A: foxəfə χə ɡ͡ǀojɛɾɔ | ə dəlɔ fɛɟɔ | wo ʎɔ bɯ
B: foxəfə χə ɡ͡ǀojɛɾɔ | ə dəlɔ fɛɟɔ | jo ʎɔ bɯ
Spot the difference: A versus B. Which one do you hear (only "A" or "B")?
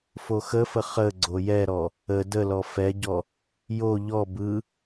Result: B